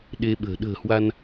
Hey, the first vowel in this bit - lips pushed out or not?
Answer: no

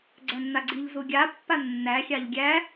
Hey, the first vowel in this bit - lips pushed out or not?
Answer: no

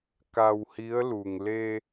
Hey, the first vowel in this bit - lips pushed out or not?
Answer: no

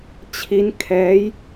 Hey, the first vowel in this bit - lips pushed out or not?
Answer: no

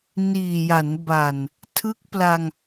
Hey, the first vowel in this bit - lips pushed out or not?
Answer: no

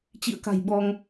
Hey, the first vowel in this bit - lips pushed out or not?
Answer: no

